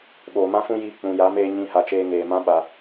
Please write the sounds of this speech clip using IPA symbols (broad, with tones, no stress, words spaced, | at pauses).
ɓoː˨mã˦fũ˦jiː˧ k͡pũ˨ja˨˦meː˧ ɲĩ˧ha˨t͡ʃeː˧ŋeː˨ mã˦ ɓa˧